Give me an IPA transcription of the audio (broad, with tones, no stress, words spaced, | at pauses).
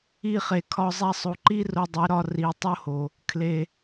i˦˨χe˨kʰɒ˧ zˤæ˧sˤo˨ǃi˦ ro˧dˤe˨˦ɾɒ˧ ri˨ tˤo˦ho˨ | kʰle˨